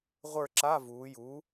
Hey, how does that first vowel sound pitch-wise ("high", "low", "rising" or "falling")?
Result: falling